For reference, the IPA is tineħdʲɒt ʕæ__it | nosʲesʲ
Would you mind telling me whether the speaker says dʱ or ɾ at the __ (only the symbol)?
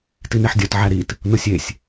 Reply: ɾ